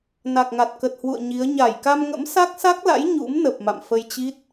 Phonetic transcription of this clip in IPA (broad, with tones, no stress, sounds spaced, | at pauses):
n a˨˩ k̚ ŋ a˨˩ t̚ k ə˨˩ t̚ h w ṵ˧˨ ə̯ ɲ i˨˦ ə̯ ɲ a˧˩ j k a˧ m ŋ ə̰˧˥ m s a˦˥ k̚ s a˦˥ k̚ l a̰˧˥ j ɲ ṵ˧˥ m n ə˨˩ p̚ m a̰˧˨ m f ə˧ j t͡ɕ i˦˥ t̚